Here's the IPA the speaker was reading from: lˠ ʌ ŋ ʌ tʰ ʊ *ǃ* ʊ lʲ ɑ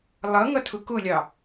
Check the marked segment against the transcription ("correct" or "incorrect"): incorrect